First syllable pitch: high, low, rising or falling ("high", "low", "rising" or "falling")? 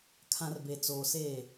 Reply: low